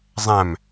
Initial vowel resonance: nasal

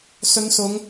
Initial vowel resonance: oral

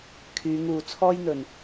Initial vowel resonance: oral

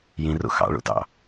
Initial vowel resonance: nasal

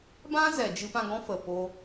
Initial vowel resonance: nasal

